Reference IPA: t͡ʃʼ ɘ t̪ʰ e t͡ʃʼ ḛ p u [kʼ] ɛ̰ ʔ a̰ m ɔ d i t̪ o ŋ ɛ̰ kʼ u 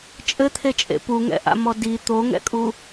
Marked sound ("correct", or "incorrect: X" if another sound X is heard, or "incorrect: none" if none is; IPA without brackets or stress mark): incorrect: ŋ